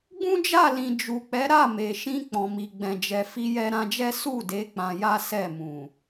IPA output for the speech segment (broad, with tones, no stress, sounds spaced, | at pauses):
ɡ͡b ũ˦ d͡ʒ a˦˨ l ĩ˨ d͡ʒ u˨ k͡p ɛ˨˦ ɾ a˦˨ m e˨ ʃ ĩ˧ k͡p ɔ̃˨ m i˨ ɡ͡b ɛ̃˨ d͡ʒ ɛ˨ f i˧ j ɛ˧ ɾ ã˧ d͡ʒ ɛ˦ s u˦˨ d e˨˦ k͡p ã˧ j a˦ s ɛ˦˨ m ũ˨